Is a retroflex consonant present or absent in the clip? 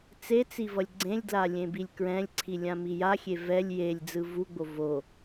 absent